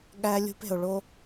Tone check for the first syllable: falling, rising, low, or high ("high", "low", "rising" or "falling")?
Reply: high